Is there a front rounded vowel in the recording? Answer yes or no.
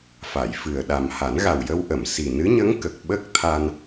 no